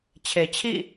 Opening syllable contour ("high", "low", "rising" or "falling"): low